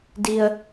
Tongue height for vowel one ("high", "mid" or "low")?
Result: high